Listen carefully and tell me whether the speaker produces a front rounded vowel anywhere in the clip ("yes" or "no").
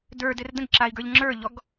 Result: no